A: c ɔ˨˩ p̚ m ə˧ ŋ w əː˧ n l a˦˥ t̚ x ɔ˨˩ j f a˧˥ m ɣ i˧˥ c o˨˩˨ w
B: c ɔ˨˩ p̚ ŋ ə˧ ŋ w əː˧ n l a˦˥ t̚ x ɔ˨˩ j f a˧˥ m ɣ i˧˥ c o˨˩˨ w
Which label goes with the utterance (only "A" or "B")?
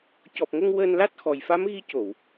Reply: B